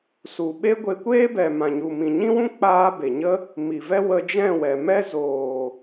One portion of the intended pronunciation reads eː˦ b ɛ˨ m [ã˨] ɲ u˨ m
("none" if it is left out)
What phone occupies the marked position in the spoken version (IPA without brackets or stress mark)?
ã˨